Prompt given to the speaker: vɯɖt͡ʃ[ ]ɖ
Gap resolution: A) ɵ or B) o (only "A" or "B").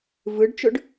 A